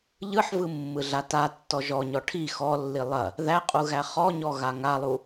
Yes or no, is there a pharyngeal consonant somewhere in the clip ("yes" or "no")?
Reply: yes